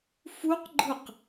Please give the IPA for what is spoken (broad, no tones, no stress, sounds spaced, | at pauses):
f u q ɡ͡ǃ ɯ q